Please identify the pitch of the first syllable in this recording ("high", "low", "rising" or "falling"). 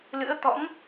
rising